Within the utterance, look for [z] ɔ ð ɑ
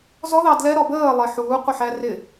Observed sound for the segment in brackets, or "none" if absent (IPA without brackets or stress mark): z